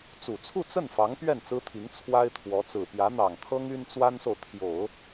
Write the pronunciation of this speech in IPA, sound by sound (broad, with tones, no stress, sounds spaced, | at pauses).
t͡s u˨˩ t͡sʰ u˥˧ t͡s ə˥˩ n f ɑ˧˥ ŋ p ɥ ɛ˥˩ n t͡s ɹ̩˥ t̪ʰ i˧˥ ŋ t͡sʰ w a˥ ɪ̯ t̪ʰ w ɔ˧˥ t͡s ɹ̩˨˩ p j ä˧˥ n̪ ɑ˨˩ ŋ t̪ʰ ɤ˥ ŋ y˥ n t͡s w a˥ n s o˨ ʊ̯ t̪ʰ j o˨˩˦ ʊ̯